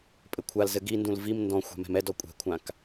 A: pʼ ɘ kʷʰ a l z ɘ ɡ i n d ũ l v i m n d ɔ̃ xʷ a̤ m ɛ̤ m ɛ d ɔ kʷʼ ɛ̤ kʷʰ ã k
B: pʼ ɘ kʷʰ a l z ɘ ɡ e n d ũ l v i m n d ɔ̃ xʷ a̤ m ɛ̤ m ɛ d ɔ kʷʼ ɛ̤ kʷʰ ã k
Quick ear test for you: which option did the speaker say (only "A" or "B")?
A